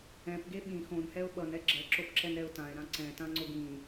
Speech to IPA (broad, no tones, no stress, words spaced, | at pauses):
ɛ̃pɡe ɓĩ xõnhɛʊ̯ ɓʌnɛ ɡ͡ǁɛǁopǁɛnɾɛʊ̯ tãɪ̯ɾã ǀɛ̃tãŋ͡ǀo ɡĩ